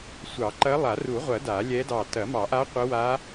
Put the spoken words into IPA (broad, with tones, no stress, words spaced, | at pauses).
sʷɑ˨˩˦ǃɐ˧˥ lˠa˨˩˦ru˨˩˦ʁʷɐ˨˩˦ da˨˩˦lʲɛ˧˥dɑ˧˩ tɐ˨˩˦mɑ˨˩˦ʔa˧˥ qʷə˧˥wa˧˥